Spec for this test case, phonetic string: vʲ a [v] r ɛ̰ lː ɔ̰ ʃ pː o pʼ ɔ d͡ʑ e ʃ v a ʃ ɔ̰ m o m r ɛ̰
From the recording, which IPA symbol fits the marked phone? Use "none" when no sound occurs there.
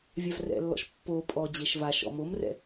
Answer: v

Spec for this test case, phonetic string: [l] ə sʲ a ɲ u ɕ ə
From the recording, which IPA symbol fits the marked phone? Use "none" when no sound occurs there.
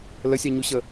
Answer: l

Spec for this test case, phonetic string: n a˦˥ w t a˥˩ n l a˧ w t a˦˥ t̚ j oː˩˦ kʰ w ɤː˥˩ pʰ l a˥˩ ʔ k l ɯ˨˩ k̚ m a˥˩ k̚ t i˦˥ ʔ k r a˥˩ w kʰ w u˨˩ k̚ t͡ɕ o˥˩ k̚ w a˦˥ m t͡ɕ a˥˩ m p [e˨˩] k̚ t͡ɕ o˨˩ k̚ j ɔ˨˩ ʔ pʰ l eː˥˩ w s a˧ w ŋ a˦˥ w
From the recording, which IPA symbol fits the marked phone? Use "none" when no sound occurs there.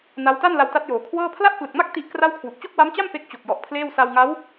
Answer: e˦˥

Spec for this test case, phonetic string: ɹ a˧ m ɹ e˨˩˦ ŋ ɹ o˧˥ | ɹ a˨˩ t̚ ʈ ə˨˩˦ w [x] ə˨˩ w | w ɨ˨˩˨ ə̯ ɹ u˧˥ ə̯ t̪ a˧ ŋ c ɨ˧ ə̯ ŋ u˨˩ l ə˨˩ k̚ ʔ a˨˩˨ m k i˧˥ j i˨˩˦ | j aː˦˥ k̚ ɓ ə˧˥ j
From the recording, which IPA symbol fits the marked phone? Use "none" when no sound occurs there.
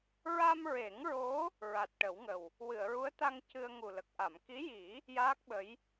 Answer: ŋ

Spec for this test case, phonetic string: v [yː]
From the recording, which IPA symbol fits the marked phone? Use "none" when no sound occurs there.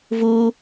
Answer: uː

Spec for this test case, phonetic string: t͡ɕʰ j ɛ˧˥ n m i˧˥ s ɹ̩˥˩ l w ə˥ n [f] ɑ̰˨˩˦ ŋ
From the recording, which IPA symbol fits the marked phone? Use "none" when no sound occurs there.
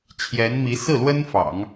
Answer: f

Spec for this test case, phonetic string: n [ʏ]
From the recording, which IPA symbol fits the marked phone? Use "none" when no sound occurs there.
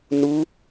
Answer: u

